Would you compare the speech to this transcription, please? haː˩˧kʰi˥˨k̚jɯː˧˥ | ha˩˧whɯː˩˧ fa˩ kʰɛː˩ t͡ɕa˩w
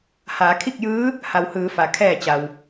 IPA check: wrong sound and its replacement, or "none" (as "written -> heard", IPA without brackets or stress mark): ɛː˩ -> ɛː˧˩